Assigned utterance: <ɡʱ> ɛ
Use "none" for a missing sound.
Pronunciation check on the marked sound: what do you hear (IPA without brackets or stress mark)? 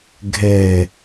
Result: ɡʱ